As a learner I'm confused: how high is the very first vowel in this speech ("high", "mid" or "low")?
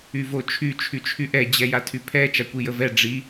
high